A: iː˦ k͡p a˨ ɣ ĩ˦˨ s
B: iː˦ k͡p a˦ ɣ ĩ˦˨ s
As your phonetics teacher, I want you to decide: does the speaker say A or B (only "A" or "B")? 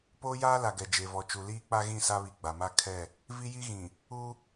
B